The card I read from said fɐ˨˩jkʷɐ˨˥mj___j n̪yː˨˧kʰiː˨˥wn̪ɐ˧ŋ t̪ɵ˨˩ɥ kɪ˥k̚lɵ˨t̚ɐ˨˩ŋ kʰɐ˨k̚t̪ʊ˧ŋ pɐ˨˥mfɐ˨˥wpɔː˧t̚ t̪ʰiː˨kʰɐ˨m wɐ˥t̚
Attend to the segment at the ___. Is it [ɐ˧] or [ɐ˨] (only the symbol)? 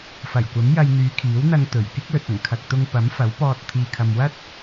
ɐ˧